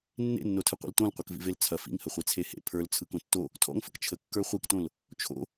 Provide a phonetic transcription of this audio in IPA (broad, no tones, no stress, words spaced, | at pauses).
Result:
nːḛnːotʰɯ qʷḭltõlqʷɐk vḭvelt͡sʰɐ fḭŋhə χʷet͡sʰehḛ pʰə˞lt͡sʰɯkõ tːo | tʰɔ̰ŋfək t͡ʃʰəkːə˞ χʷiktõl | t͡ʃʰo̰